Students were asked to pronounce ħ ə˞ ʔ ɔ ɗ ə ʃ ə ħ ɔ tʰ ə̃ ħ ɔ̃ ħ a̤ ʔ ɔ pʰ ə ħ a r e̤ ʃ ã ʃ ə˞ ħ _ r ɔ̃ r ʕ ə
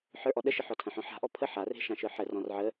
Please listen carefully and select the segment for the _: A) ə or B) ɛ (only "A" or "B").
A